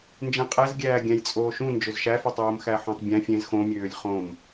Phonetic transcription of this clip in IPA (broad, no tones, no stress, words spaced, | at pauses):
nd͡ʒẽqʼɛzɡʲæː ɡʲæ̃jt͡sʼoːʃũ nd͡ʒøzʃæfɛtˤ oːmxæħõtˤbʲæ̃ fʲẽz xõ mʲøːlʲχõm